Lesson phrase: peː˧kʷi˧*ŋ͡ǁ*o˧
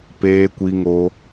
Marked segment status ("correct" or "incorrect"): incorrect